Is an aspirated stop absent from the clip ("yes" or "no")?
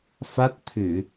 no